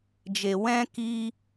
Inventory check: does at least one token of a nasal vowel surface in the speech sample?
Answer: yes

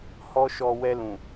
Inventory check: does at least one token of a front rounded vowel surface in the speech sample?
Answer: no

